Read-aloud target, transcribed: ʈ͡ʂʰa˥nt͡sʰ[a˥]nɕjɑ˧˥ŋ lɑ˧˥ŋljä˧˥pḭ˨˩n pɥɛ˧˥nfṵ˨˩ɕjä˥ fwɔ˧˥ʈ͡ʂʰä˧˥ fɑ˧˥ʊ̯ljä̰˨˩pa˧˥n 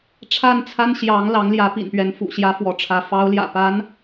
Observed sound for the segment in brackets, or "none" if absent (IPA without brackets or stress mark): a˥